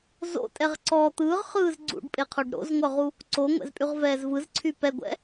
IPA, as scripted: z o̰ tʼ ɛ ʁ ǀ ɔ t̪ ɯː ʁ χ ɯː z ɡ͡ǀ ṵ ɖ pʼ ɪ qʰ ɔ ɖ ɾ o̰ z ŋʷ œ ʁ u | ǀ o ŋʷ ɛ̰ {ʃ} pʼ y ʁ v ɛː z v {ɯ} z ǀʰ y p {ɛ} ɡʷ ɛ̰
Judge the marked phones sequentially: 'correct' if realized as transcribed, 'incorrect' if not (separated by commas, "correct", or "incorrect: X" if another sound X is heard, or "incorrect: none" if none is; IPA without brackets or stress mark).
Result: incorrect: z, correct, correct